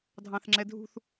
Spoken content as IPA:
dʱ ɑ̃ θ ŋ͡ǁ ɛ dʱ ṳ θ

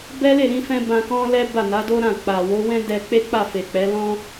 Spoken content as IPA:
b ɛ˦ l e˦˨ ɾ ĩ˧ f ɛ̃˧ b ã˧ k ɔ̃˦ l ɛ˦ b a˦˨ n a˨˦ d o˦ ɾ ã˦˨ k͡p a˨ w o˨˦ w ɛ̃˦ d ɛ˧ k͡p e˦ k͡p a˦˨ f e˨ k͡p ɛ˨˦ l ɔ̃˦

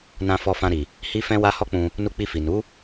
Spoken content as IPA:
n ã˧ f ɔ˧ f ã˧ ɾ i˨ | h i˦ f ɛ̃˦ w a˦ h ɔ˦ k͡p ũ˧ | n u˧ k͡p i˧ f i˨ n u˨˦

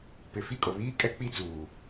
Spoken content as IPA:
p ɪ˨ f i˦˨ kʼ o˨ β iː˦ kʼ ɛ˦ k͡p i˦ t͡s uː˨

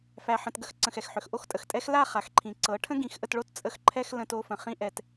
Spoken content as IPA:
f æ˧ ħ ə̃˧ t ɡ ə˦ x ǀ ə̃˨ x ɛ˨ x ħ ʏ˨ x ʔ o˦ x tʼ ə˨ x tʼ ɛ˦ x l a˦˨ χ a˨ x ǃʰ ĩ˨ ǀ ɤ˨˦ ʈʰ ə̃˦ ɡ ĩ˨˦ x ʔ ə˧ t ɭ o˦ t t͡sʼ ə˧ x ǃʰ ɛ˧ x l ə̃˧ t o˧ f ə̃˨ χ ĩ˦ ʔ ɛ˧ t

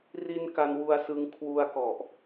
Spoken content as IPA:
r i˧ n k a˧ n w u˧ a̯ s ɯ˧ ŋ kʰ w u˧ a̯ k ɔ˨˩ ʔ

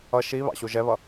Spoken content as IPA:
ʌ ʃ i β ɑ̰ ɕ u ʒ ɛ β ʌ

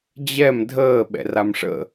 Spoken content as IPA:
d͡ʑ ɛ m dʱ əː ɓ ɛ̰ r a m ʂ ə̰

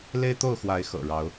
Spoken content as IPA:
l e˦ ɪ̯ t̪ o˥˨ ʊ̯ x w a˨˦ ɪ̯ x ɤ̰˨˩ ɻ ɑ˨˦ ʊ̯

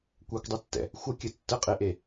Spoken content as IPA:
kʷ ɛ kʷ dˤ ɯ tː ɛ̰ | xʷ ə kʲ ə tː ə qʼ e ʔ e

